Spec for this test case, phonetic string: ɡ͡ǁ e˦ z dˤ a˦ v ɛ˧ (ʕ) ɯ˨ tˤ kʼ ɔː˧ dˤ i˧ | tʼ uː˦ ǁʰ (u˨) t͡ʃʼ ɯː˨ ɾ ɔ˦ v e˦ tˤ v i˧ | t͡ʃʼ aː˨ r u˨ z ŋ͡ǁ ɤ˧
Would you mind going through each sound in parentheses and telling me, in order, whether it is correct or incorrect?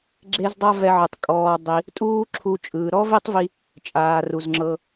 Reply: correct, incorrect: u˧

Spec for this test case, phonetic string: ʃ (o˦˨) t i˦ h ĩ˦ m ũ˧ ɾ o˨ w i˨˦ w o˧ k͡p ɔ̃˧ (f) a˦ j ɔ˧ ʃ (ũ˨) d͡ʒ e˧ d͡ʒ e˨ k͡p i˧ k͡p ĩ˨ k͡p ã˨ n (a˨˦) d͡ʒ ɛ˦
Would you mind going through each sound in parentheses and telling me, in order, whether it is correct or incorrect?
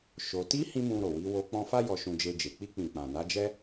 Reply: incorrect: o˧, correct, incorrect: ũ˧, correct

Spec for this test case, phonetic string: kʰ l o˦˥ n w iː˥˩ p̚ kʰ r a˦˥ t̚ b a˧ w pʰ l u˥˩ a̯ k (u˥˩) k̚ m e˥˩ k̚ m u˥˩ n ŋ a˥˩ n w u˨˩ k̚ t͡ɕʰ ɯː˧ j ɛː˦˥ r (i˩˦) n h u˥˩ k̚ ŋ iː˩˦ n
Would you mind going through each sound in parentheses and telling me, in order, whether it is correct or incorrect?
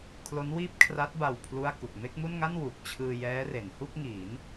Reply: incorrect: u˨˩, incorrect: e˩˦

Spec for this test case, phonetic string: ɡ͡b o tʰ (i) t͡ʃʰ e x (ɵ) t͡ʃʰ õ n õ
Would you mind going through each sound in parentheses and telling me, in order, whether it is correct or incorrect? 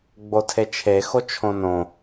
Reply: incorrect: e, incorrect: o

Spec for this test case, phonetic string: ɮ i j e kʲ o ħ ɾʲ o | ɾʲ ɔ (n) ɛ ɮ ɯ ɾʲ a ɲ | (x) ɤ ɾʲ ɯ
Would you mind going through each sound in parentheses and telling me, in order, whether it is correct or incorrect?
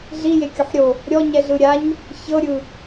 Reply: incorrect: ɲ, incorrect: ç

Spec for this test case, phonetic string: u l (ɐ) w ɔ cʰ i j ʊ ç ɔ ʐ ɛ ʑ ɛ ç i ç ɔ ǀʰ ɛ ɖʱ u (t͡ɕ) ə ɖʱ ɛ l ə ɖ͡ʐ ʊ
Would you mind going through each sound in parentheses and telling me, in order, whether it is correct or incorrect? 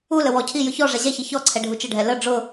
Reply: incorrect: ə, incorrect: t͡ʃ

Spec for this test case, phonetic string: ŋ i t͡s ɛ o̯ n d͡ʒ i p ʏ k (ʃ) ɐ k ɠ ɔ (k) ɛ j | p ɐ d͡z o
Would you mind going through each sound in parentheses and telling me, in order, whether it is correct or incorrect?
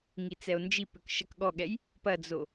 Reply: correct, incorrect: ɠ

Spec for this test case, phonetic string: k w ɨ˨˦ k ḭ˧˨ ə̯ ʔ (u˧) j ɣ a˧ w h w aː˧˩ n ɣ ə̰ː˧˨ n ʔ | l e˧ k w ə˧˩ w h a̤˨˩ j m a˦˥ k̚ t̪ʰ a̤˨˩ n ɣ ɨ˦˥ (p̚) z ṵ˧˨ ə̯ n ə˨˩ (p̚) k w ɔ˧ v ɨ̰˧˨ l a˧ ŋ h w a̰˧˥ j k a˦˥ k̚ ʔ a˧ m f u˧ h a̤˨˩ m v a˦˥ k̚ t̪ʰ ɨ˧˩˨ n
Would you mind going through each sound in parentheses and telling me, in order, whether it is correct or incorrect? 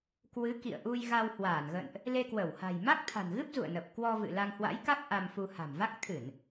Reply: correct, correct, correct

